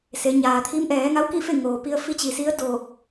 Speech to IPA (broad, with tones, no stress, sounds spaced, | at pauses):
s e˩˧ ɲ aː˩ t̪ʰ i˧˥ m ʔ ɛː˩˧ ŋ a˧˥ w k i˥˨ f e˥˨ ŋ oː˩ p i˧ ə̯ f i˧˥ t͡ɕ i˩ s i˧˥ ə̯ d oː˧˩ k̚